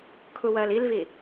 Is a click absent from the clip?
yes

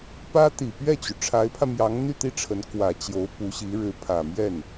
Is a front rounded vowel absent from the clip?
no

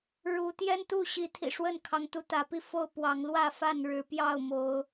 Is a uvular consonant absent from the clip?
yes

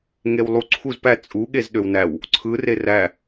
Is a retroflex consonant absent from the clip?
yes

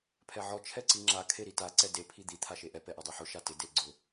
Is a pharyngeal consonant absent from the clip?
no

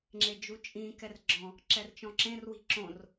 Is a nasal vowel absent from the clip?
no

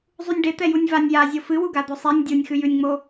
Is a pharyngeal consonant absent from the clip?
yes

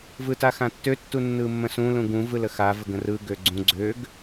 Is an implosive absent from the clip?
yes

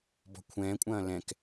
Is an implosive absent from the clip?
yes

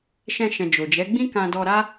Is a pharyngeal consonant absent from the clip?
yes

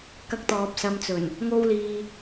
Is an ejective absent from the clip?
yes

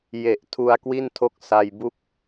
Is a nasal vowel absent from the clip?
yes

